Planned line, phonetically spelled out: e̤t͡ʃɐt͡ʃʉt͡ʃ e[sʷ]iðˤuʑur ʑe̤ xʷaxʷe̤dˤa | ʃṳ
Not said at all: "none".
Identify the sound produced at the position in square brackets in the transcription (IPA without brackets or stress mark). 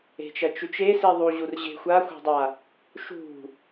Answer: s